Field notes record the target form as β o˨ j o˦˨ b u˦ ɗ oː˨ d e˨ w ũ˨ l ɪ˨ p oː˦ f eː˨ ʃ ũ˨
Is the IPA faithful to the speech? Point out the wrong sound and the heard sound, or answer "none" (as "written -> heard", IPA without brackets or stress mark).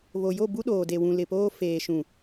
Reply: none